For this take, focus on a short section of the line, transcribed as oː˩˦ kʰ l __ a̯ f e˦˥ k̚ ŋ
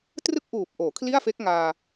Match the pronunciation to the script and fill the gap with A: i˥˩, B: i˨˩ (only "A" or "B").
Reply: A